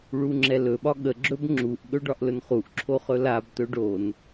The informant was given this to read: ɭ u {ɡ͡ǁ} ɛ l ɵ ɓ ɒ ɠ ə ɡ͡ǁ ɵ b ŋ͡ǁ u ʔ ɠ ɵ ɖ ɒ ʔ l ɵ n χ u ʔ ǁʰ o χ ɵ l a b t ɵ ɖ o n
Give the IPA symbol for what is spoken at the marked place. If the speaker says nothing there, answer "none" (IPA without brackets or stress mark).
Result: ŋ͡ǁ